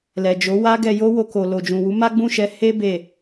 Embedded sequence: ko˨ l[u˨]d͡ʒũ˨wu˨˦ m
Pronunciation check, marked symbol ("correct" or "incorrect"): incorrect